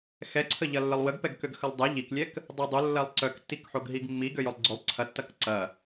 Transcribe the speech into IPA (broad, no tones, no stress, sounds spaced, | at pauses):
x ɛ ǀʰ ə ʎ ɐ lː ə lˠ w ə ɡ p ɛ ɡ k ø ɡ x ə lˠ dˤ ɛ ʎ i k lʲ ɛ k | dˤ o dˤ ʊ lː ɐ lˠ ǀ œ k tː i k ħ o ɡ ɦ i ɡ mː i ɡ ø j ʊ lˠ ɡ͡ǀ ʊ lˠ ǀʰ ɐ tː ɐ k ǀ ɐ